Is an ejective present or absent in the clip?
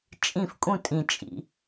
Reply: present